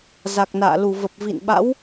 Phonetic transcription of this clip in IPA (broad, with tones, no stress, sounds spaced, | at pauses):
z a˨˩ k̚ n a̰ː˧˨ l u˧˩ v ə˨˩ p̚ v ḭ˧˨ n ɓ a̰˧˥ w